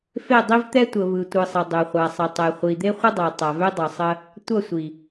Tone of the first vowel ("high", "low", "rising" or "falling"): falling